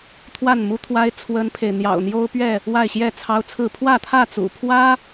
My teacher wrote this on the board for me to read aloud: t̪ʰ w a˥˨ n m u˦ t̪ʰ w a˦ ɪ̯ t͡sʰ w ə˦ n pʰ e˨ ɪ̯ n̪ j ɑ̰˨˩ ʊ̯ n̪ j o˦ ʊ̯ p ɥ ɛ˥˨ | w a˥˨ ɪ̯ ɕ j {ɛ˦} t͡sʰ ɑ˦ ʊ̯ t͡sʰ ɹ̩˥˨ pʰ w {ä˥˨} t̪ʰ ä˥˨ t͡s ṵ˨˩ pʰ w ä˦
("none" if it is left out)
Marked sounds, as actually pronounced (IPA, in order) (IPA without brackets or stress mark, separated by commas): ɛ˥˨, ä˥˨